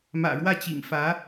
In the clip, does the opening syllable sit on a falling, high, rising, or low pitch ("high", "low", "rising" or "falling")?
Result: low